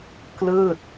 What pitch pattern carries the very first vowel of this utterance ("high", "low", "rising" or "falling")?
falling